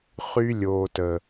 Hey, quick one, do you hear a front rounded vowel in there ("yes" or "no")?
yes